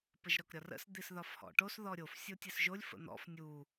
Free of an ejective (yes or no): yes